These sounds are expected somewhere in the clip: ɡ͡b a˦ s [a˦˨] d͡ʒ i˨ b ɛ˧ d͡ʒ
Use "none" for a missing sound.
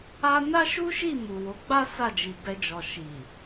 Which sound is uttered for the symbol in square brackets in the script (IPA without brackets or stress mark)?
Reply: a˦˨